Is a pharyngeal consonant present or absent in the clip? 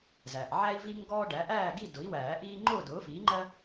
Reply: present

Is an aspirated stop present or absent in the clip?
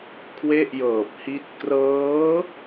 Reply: present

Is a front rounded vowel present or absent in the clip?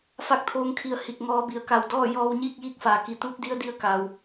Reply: absent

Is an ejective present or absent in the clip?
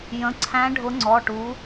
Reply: absent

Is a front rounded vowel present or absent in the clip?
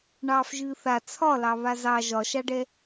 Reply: absent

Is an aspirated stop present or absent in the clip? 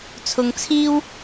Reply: present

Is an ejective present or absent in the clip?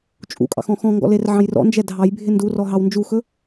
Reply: present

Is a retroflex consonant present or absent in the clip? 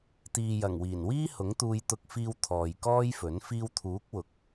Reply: absent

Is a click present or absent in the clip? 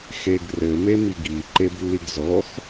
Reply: present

